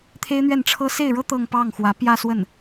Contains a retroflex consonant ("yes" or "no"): yes